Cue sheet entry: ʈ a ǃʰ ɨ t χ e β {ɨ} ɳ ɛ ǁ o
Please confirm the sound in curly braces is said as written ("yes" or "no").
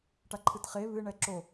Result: yes